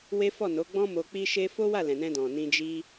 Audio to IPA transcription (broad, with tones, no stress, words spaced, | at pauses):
we˦fɔ˦˨ no˨˦ɡ͡bɔ̃˦mo˧ k͡pi˦ʃe˦ fo˦ wa˦˨lɛ̃˨nɛ̃˧dɔ̃˨ nĩ˧d͡ʒi˦